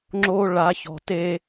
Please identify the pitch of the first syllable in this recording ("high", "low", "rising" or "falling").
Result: high